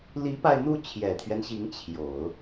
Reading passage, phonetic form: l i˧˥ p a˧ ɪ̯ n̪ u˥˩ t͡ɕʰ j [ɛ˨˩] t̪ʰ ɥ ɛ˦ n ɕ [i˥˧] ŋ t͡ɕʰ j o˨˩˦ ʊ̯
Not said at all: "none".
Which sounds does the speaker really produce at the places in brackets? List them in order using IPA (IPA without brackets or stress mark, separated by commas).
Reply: ɛ˨˩, i˧˥